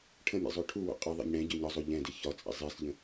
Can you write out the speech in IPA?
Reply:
ʈʰ ə̃ mʲ ɛ̰ zˤ o ʈʰ u w o̰ qʼ ɨ ðˤ ɛ̰ ɲ ɽ ɛ̃ ɟ ø ɲ ɒ zˤ o ʎ ɛ̃ d i ç ɒ t͡sʼ ḭ zˤ i s ʎ ə̃

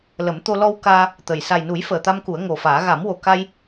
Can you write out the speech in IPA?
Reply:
l ə˨˩˦ m t̪ o˧ l ɔ˧ w k aː˧ | t̪ ə˨˩ j s a˨˩ j n u˨˩˦ j f əː˨˩ t̪ a˧ m k u˨˩˦ ə̯ ŋ o˨˩ f aː˨˩˦ ɣ a˨˩˦ m w o˨˩ k a˧ j

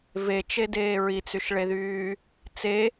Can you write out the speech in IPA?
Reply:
v e t͡ʃ e d eː ɹ i t͡s y ʃ ɭ e ð yː | t͡s e

